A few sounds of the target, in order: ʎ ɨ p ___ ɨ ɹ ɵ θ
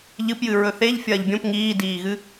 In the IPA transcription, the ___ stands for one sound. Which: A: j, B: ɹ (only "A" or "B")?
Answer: A